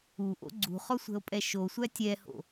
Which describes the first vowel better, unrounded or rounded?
rounded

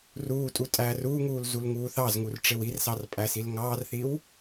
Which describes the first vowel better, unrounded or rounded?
rounded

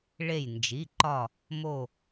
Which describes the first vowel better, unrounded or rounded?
unrounded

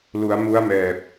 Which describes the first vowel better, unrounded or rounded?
rounded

